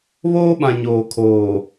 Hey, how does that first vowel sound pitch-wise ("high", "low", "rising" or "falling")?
high